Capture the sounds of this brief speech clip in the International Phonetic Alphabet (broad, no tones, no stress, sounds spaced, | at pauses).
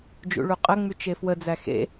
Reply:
d͡ʒ ṵ ɭ u qʼ ə ŋ͡m y t͡ʃ e f w ə d͡z æ x ḛ